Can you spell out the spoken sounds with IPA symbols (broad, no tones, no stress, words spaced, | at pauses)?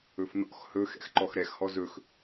ɵfnɔ̰x hɵ xɛ̰xǃɔxɾɛx hɔzɵx